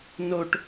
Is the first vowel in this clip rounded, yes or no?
yes